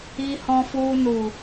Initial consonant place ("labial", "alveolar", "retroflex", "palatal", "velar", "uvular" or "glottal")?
glottal